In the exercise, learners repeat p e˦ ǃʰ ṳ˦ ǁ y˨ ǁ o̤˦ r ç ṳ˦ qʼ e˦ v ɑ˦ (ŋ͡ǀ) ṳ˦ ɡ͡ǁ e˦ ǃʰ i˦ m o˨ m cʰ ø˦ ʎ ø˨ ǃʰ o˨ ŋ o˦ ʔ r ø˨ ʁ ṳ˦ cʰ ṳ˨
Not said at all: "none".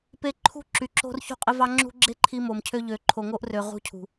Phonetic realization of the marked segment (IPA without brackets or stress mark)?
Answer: ŋ͡ǁ